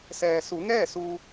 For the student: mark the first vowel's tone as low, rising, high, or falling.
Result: low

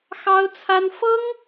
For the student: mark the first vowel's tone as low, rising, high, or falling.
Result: high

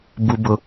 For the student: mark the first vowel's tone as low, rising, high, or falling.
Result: low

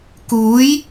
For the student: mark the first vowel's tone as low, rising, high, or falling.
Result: rising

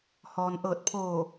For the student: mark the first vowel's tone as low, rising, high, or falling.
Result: low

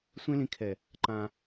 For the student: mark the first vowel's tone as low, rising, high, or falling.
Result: high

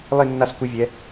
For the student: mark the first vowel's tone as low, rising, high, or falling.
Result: falling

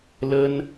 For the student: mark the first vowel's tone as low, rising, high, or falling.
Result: high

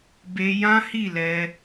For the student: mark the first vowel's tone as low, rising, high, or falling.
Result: high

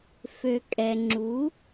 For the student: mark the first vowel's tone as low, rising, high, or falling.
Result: low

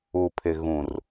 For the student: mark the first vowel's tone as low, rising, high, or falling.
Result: low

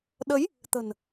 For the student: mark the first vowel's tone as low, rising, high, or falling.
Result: rising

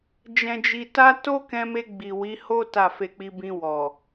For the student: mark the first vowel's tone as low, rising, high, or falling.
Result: low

